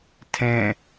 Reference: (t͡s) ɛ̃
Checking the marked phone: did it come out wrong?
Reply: yes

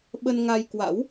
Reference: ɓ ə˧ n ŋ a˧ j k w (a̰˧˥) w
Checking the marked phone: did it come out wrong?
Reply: no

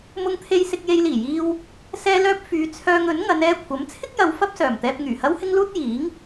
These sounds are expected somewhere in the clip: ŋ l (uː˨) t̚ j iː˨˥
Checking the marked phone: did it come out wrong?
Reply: yes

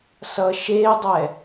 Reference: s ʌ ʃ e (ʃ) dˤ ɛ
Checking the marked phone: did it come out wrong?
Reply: yes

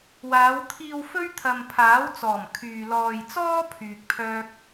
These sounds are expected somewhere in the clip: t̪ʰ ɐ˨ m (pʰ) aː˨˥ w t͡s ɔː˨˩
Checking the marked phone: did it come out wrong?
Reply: no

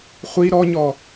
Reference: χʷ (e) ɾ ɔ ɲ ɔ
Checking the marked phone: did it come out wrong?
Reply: yes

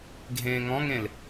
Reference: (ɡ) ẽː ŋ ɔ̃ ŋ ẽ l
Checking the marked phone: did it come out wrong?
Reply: yes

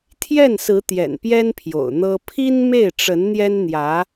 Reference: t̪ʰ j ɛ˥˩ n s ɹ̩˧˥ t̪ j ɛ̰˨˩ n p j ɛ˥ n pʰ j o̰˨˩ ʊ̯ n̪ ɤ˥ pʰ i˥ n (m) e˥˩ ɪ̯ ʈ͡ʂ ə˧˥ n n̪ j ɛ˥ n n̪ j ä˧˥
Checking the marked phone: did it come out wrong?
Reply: no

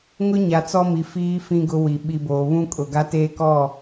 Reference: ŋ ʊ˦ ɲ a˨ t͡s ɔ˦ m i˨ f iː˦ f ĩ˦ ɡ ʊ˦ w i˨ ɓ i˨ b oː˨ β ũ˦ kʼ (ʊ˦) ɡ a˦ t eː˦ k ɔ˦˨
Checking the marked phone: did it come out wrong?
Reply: yes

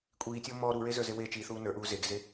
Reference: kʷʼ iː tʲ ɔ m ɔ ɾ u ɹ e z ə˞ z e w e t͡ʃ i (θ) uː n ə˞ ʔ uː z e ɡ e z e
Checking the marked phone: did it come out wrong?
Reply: no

